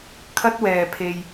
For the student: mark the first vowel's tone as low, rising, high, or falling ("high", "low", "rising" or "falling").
high